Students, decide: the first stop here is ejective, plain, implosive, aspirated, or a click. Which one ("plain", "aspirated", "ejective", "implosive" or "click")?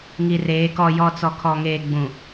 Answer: plain